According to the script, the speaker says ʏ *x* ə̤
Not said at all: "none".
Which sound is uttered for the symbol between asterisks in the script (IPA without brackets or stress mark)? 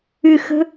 x